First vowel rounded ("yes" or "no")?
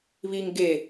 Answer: no